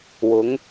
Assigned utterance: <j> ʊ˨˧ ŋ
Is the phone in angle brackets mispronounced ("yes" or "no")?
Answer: yes